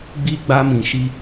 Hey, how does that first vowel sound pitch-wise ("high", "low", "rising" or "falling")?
high